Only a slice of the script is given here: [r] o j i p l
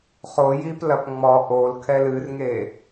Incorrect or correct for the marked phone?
incorrect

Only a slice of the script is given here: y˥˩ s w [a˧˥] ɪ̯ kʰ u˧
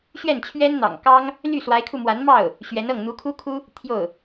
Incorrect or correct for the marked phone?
correct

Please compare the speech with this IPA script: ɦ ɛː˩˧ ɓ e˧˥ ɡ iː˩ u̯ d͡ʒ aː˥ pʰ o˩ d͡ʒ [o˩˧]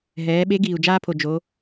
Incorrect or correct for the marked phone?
correct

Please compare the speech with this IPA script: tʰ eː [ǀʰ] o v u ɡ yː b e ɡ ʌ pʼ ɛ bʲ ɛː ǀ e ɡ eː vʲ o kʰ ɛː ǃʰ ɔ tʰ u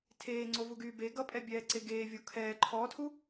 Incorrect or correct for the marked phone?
incorrect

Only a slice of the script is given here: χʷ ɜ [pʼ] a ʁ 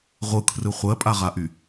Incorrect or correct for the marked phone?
correct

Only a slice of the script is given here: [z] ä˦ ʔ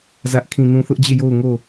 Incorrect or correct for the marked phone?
correct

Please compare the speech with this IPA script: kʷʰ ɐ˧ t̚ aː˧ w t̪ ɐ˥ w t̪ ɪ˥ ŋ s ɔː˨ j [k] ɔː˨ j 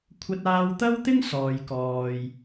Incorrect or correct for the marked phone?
correct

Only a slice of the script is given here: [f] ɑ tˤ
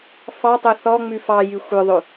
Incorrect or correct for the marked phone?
correct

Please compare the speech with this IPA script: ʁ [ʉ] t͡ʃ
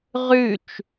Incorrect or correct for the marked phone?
correct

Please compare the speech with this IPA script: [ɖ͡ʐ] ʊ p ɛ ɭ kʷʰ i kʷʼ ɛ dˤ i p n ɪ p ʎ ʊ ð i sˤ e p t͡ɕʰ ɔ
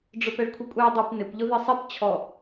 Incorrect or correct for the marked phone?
correct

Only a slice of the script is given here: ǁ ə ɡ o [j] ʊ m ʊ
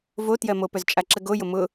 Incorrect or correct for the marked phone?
correct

